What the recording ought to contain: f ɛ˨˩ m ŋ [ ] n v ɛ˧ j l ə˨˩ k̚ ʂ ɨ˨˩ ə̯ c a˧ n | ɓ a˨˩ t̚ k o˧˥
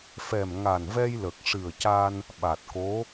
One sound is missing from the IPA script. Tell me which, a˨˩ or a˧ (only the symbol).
a˨˩